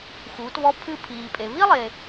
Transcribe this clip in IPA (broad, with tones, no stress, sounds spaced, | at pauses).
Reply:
x uː˩˧ t β ɔ˧˥ pʰ ɨ˧ pʰ iː˩ pʼ e˩ β i˥ lˠ e˩